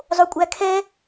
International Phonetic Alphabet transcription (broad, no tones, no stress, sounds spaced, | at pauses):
zˤ o kʷʼ æ kʰ ɛ